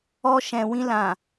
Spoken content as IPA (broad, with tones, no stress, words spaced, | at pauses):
ɔ˧ʃɛ̃˨wĩ˧lã˨